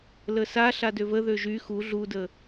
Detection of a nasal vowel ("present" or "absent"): absent